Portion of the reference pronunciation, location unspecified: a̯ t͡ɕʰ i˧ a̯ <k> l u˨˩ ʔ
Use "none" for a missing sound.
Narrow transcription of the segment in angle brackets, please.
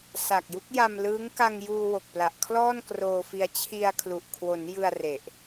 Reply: kʰ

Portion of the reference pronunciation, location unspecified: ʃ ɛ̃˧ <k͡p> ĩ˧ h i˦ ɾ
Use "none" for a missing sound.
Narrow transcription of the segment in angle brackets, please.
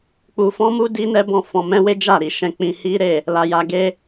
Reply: k͡p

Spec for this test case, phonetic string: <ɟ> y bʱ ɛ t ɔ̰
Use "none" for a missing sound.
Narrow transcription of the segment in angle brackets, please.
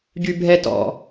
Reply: ɟ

